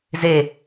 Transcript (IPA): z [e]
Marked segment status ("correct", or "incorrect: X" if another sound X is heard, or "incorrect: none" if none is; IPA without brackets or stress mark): correct